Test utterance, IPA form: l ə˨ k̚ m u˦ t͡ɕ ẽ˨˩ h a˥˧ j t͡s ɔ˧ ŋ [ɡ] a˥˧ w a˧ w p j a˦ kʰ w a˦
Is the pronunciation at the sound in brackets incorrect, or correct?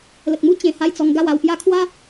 correct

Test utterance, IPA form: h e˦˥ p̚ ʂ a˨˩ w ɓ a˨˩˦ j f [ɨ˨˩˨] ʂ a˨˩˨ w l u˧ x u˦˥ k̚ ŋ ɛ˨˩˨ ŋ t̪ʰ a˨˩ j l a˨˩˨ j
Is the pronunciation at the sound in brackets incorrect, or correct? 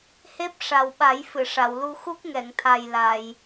correct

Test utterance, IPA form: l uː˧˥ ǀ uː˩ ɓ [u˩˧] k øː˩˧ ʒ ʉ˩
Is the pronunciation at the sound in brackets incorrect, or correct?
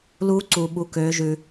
correct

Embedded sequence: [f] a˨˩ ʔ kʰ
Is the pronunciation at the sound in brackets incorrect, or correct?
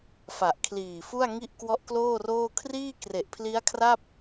correct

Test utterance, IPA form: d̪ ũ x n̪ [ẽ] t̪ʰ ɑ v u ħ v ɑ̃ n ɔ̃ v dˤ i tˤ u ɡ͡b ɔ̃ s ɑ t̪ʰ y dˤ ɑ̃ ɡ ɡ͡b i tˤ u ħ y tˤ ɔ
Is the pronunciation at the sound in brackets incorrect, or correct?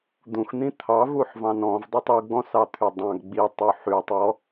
incorrect: ĩ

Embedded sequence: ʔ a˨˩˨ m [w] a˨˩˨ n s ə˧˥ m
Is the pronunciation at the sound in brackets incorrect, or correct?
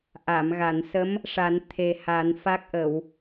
incorrect: ɣ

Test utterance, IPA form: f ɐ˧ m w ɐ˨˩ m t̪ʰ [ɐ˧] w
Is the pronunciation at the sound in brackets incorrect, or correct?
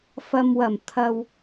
correct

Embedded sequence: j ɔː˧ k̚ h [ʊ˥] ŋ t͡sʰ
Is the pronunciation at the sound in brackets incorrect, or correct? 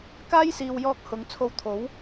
incorrect: ʊ˨˧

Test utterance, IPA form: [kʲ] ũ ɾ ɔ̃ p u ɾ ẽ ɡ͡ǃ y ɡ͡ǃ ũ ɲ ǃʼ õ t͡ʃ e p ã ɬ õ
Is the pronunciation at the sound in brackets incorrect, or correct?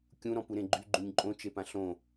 correct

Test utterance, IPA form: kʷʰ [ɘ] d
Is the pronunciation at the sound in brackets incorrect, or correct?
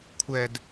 incorrect: ɛ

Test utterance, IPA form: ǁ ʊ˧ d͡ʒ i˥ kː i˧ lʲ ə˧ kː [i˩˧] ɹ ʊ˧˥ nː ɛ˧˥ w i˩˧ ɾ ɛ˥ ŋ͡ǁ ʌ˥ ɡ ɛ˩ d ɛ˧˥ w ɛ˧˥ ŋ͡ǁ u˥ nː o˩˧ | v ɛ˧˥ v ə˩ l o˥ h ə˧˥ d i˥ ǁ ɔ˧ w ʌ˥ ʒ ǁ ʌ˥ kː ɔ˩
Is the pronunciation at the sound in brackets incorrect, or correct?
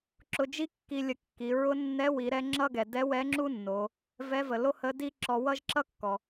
correct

